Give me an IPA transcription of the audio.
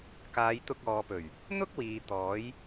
k aː˨˧ j t̪ ʊ˧ k̚ ɔː˨ p ɵ˨˩ ɥ | n̪ ʊ˥ k̚ w iː˨ t̪ ɔː˨˥ j

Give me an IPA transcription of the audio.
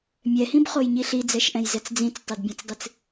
mʲ ɛ h ĩ b χ o j ɲ i ɬ i d͡z ɛ ʃ ʔ ɛ̃ j z ɛ t͡s d͡z ĩ t͡s tˤ ɘ d bʲ ɛ̃ t͡s dˤ ɨ t͡s

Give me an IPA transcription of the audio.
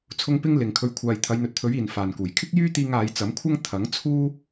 t͡sʰ ʊ˧ ŋ p ɪ˥ ŋ l ɪ˨ ŋ kʰ ɵ˧ ɥ kʷʰ aː˨ j t̪ʰ ɐ˨˧ j n̪ ɵ˨ t̚ t̪ʰ ɵ˨˥ ɥ iː˨ n f aː˨ n k uː˨˩ j kʰ ɪ˥ k̚ j yː˥ t̪ iː˧ ŋ aː˨˧ j t͡s ɐ˨˥ m kʷʰ ɐ˥ ŋ t̪ʰ ɐ˨˥ ŋ t͡sʰ uː˥

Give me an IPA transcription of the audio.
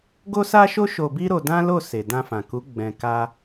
ɡ o˦ s a˦ ʃ o˦ ʃ o˧ b i˦ ɾ o˧ d ã˦ l o˦˨ s e˨ d ã˧ f ã˨ k u˨˦ ɡ͡b ɛ̃˧ k a˦

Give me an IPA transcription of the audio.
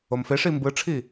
o m f e ʂ i m b ɯ ʈ͡ʂʰ i

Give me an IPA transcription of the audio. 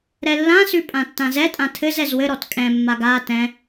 ɾ ɛ lː ã s ʉ pʼ ã tː ã z ɛ tʼ ã tʰ ɘ z ɛ z w ɘ ɾ ɔ t kʼ ɛ̃ mː a ɡ a t ɛ̃

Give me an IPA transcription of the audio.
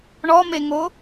ɳ ɔ m e ŋ o

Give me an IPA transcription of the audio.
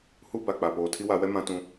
h u˦ b a˨ k͡p a˨ p oː˨ tʰ i˦ w a˨˦ w ɛ˦ m ã˦ t ũ˦

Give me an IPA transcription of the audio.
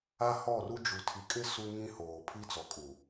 a˦ h ɔ˦˨ r u˦ d͡ʒ u˨ tʰ i˨ kʼ ɪ˦ s u˦ ŋ ĩ˦ h oː˨ pʰ i˦ t͡s ɔ˨ kʼ u˨

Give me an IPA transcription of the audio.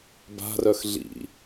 b a̤ r œ x ɮ ḭ

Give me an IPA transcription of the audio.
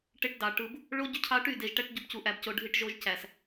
ʈ e˦ ʈ d ɑ˨ ʈ ɯ˦ b | ɭ o˦ ɟ y˦ cʰ ɑ˦ ʈ y˦˨ d e˨ ʒ ʈ æ˦ ʈ ɟ o˦ b c u˨ ʔ æ˨ b c o˨ ɖʱ i˦ ʈ ʒ o˦ ʒ c æ˨ s

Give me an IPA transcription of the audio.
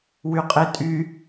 w y qʼ e tʼ y

